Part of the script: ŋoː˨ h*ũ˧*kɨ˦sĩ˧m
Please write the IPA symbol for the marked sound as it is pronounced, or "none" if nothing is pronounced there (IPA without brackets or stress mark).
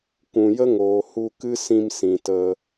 u˧